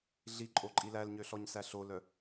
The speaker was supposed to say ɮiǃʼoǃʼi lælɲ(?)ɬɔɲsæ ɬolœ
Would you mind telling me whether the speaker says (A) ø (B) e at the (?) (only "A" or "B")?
A